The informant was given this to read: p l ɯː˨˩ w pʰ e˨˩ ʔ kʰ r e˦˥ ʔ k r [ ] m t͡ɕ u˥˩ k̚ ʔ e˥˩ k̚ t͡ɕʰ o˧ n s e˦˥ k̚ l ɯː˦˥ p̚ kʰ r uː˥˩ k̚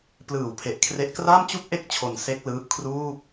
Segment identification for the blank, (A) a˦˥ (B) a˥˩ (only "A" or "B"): B